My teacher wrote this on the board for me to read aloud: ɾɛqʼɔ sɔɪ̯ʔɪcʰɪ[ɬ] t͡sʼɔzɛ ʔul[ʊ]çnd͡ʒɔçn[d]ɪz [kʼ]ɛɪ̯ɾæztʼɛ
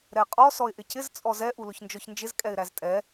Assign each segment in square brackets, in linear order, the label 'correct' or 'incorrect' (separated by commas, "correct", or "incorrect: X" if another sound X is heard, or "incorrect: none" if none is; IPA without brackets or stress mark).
incorrect: z, correct, incorrect: d͡ʒ, correct